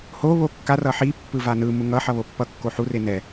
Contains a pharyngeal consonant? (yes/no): yes